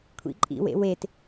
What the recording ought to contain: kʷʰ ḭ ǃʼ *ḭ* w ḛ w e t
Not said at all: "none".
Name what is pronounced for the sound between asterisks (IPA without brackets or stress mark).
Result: ḭ